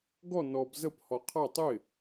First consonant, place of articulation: velar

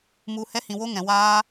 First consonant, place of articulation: labial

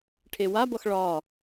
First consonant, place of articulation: retroflex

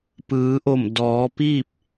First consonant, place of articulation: labial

